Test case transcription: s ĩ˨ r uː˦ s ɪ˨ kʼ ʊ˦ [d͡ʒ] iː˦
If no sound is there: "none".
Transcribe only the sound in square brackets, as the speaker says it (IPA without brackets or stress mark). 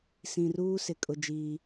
d͡ʒ